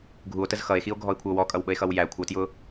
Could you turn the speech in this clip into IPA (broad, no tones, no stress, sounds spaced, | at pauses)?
ɡʱ u o̯ t ə z x ʌ e̯ x i o̯ ɡʱ ɔ e̯ kʷʰ ə o̯ w ɔ kʼ ʌ w ɓ ə e̯ x ʌ w j æ kʷʰ ʌ t j ʊ